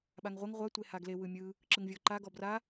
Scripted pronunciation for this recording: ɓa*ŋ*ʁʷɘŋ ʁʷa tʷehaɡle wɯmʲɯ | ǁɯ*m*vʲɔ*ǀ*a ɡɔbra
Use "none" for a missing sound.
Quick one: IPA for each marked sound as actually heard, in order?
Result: ŋ, ŋ, ǃ

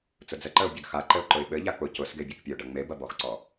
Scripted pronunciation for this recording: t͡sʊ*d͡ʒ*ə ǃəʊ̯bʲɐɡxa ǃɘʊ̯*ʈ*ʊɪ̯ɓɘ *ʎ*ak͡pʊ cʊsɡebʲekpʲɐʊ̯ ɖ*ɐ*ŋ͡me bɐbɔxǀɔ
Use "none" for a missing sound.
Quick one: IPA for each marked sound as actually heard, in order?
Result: d͡z, ǃ, ʎ, ɐ

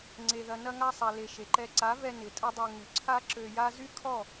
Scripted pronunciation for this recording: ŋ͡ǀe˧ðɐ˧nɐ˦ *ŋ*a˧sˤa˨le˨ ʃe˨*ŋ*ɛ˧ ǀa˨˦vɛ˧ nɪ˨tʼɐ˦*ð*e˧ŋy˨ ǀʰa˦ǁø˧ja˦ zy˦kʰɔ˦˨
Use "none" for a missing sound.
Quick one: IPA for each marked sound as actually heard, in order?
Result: ŋ, ǃ, dˤ

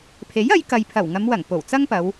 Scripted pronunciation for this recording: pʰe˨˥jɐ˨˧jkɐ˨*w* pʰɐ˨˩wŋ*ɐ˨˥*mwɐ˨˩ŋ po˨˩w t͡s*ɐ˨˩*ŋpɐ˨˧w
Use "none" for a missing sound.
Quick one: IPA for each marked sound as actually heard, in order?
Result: j, ɐ˨˧, ɐ˥

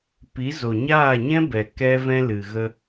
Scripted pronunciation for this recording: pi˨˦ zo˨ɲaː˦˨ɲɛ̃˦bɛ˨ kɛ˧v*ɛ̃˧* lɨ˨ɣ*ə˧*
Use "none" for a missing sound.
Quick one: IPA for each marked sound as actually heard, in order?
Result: ɛ̃˧, ə˧

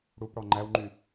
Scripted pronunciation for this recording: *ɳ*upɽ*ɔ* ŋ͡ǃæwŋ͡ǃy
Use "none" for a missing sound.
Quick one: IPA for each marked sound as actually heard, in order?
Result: ɽ, ɔ

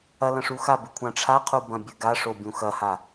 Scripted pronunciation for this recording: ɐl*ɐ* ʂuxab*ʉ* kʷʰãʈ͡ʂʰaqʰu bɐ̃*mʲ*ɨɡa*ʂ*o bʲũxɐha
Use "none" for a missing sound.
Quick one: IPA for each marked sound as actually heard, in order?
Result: ɐ̃, ʉ, bʲ, ʂ

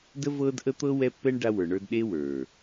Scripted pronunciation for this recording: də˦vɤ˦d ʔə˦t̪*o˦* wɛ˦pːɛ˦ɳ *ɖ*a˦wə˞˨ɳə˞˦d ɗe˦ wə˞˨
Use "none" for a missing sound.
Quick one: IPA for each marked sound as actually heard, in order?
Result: ɤ˦, ɖ

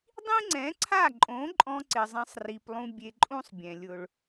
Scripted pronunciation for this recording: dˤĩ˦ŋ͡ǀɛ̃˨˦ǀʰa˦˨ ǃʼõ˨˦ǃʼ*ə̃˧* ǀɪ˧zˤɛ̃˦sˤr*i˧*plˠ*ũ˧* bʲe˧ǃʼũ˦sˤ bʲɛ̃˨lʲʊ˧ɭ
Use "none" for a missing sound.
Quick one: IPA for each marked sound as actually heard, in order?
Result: ɔ̃˧, i˧, ũ˦

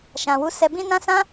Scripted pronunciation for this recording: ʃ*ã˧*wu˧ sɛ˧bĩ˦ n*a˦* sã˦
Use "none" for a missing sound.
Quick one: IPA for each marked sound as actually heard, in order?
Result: ã˨, ã˦

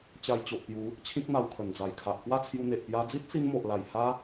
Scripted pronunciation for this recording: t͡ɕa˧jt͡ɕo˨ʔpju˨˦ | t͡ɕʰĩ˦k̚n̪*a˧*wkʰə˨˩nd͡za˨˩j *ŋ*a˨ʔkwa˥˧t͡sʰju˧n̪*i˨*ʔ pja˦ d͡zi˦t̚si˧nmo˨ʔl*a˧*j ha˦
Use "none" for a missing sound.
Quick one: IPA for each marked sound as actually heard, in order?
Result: a˧, kʰ, e˨, a˨˩

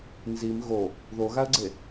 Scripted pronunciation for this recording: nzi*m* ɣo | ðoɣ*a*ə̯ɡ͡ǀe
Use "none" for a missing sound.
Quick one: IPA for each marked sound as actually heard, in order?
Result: m, a

